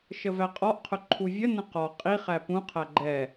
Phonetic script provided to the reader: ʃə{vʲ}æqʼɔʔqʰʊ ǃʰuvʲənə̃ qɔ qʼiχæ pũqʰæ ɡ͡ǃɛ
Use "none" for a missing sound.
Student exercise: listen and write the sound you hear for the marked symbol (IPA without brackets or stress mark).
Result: v